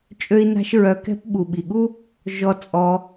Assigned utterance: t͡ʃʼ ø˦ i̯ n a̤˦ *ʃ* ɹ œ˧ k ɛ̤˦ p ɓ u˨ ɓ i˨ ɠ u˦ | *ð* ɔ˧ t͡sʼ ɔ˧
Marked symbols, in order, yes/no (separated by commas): yes, no